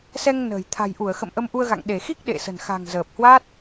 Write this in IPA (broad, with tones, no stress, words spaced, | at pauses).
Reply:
sɛ˧ŋnə̤ː˨˩j t̪ʰa̤˨˩jʔu˧˩ə̯xə̰˧˨m ʔə˧mʔu˧ə̯ɣa̰˧˨ŋ ɗe˧˩xi˦˥k̚ ɗḛ˧˨sə̤˨˩nxa̤˨˩ŋ zəː˨˩p̚hwa˦˥t̚